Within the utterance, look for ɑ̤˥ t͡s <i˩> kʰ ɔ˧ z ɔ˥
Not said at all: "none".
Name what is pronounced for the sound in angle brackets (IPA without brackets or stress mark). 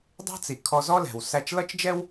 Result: i˩